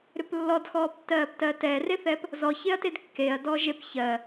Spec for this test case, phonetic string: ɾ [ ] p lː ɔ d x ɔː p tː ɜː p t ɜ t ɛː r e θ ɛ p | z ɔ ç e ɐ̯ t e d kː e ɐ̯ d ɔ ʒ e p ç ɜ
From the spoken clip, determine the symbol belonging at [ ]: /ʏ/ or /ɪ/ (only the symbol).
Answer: ʏ